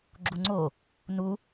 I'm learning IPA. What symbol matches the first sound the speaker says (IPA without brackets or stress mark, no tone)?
ɡ͡ǁ